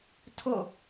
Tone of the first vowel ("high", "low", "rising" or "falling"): falling